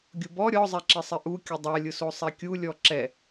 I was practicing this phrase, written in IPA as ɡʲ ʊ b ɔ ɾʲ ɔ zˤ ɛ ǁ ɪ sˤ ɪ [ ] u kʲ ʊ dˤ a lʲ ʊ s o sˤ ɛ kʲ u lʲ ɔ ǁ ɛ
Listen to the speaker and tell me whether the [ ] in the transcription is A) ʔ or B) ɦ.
A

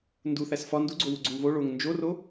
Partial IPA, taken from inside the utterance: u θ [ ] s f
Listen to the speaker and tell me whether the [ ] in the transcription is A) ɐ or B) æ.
B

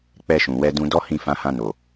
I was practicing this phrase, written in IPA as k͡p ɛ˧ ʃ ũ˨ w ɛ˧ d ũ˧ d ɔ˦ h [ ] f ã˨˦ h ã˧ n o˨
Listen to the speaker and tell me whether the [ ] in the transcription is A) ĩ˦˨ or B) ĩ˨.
A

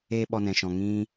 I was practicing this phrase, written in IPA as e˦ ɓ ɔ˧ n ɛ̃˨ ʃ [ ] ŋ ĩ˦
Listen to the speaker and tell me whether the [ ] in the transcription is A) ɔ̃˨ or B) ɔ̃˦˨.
A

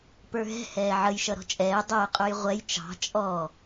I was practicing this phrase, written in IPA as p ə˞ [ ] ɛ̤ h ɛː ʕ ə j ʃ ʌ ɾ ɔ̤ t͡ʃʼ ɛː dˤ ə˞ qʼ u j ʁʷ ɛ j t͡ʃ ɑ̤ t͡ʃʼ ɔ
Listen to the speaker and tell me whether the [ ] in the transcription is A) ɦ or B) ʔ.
A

